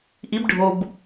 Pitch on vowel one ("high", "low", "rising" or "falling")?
rising